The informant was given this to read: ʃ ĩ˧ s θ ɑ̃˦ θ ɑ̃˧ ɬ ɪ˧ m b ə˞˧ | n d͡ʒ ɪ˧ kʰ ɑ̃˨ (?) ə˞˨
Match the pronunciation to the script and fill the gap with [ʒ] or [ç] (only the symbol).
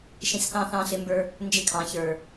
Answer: ç